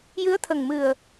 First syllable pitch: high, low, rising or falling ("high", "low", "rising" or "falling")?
rising